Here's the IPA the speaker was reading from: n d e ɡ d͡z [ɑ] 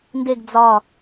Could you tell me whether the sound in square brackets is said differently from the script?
yes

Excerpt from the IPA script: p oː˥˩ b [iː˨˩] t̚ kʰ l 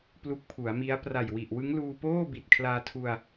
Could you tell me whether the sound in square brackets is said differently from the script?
yes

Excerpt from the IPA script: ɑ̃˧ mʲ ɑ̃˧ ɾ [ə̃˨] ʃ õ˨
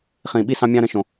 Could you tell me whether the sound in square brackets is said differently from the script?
no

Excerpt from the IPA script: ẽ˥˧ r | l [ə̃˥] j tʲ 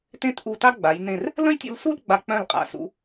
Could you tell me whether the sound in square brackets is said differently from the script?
no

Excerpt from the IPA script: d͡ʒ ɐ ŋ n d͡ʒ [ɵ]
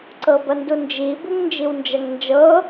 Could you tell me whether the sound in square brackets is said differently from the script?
yes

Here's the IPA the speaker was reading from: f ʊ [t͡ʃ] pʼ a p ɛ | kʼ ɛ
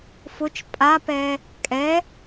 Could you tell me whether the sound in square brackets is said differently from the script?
no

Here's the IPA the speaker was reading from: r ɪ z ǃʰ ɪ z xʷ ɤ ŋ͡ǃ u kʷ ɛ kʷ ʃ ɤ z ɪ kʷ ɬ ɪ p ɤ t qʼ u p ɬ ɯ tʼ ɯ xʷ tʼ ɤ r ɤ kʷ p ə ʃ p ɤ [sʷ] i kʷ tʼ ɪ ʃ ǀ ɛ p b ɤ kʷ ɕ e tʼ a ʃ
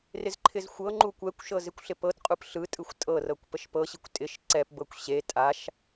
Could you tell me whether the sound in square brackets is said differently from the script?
yes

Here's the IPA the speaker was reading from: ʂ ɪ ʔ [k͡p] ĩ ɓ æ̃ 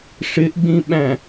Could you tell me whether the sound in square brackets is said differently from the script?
yes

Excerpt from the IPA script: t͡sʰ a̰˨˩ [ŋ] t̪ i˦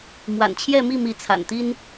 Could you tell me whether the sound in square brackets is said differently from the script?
yes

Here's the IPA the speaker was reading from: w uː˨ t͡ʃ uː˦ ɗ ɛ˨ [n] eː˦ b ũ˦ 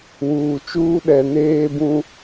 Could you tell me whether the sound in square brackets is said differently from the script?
no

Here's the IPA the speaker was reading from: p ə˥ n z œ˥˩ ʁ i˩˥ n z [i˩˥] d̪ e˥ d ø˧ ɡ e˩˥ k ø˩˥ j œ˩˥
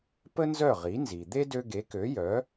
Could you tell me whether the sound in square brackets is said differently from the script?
yes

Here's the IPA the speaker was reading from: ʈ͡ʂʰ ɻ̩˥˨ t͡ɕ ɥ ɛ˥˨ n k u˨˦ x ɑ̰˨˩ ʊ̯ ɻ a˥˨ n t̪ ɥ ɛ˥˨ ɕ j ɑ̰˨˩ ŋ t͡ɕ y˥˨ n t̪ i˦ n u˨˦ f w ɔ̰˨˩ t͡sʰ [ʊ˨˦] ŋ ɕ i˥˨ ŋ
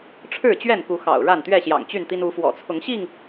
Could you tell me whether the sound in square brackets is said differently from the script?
no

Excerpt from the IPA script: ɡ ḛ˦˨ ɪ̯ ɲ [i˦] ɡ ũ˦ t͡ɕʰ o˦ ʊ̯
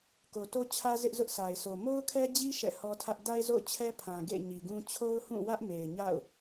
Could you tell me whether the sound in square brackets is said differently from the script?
yes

